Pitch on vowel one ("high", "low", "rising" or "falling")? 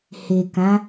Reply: low